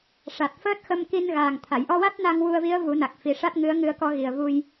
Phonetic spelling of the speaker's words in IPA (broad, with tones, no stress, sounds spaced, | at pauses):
ʂ a˨˩ t̚ f əː˦˥ t̚ x ə˧ m k i˧ n ɣ aː˨˩ ŋ t̪ʰ a˨˩˨ j ʔ ɔ˧ w a˦˥ t̚ n a˧ ŋ w u˧ ə̯ v i˧˥ ə̯ v u˨˩˦ n a˨˩ k̚ f i˨˩ ʂ a˦˥ t̚ ŋ ɨ˧˥ ə̯ ŋ ɨ˧ ə̯ k ɔ˧ ɣ i˨˩ ə̯ v u˧ j